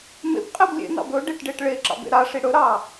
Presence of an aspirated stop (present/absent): absent